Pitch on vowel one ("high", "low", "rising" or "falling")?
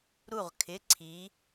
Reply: falling